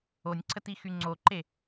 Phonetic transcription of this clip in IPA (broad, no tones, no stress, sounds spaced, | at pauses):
o nʲ ǀʰ ə t i x y ŋ͡ǀ o ǃ e